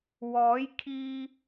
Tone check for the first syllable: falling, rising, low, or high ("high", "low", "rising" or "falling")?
rising